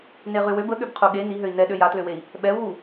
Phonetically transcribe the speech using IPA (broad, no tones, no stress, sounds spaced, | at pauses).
n e ʁ y w ø b ə ɠ ø b qʰ u ɠ e n i ɦ ø i̯ n ɛ ɗ ø j a t l ø w e i̯ | ɓ ɛ u̯ w u